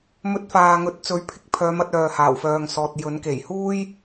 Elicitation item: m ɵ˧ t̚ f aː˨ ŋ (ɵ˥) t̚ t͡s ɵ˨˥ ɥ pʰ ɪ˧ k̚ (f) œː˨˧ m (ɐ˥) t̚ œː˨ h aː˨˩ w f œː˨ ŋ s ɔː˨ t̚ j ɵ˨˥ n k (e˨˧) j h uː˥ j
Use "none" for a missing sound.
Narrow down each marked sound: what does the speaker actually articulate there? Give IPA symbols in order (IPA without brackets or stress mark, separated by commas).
ɵ˨˥, pʰ, ɐ˧, e˨˩